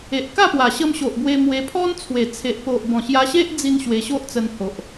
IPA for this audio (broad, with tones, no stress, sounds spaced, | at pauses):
e˨ ʔ k a˥˧ p w a˨˩ ɕ ə˧ m ɕ o˨ ʔ b w e˧ m w e˧ pʰ ɔ˦ n t͡sʰ w e˨˩ t͡sʰ e˨ ʔ p o˨ ʔ b ɔ̃˨˩ ɕ j a˧ ɕ e˦ ʔ d͡z i˧ n ɕ w e˧ ɕ o˦ ʔ t͡s ə˧ n h o˨ ʔ